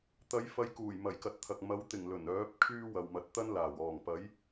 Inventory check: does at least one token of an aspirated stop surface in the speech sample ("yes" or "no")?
yes